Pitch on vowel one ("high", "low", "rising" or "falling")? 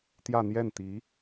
falling